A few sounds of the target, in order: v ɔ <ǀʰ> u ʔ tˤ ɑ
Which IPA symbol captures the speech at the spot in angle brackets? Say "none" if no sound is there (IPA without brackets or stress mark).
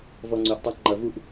ŋ͡ǀ